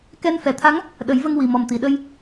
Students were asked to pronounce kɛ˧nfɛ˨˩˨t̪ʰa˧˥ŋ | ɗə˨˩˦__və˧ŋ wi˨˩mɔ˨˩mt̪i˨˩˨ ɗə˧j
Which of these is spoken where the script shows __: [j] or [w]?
j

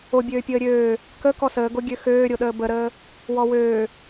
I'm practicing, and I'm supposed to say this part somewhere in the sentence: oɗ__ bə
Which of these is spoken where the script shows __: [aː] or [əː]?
əː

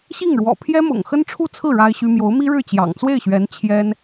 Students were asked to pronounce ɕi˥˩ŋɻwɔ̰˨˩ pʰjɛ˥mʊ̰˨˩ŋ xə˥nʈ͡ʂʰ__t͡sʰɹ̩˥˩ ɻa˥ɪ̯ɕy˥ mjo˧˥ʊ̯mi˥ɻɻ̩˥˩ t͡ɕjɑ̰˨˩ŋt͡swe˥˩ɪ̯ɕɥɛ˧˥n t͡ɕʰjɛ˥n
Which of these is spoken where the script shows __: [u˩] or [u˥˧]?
u˥˧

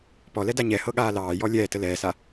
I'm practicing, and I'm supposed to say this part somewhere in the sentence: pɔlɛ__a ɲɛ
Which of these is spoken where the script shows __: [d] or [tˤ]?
d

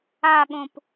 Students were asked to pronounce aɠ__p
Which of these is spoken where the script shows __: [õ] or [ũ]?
õ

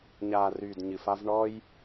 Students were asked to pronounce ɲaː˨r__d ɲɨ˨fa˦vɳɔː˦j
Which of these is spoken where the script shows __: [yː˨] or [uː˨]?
yː˨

